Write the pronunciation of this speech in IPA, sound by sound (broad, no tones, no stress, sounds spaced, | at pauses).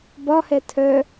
b ɒ h ɛ tʰ œ